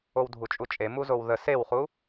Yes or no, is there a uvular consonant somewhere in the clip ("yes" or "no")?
yes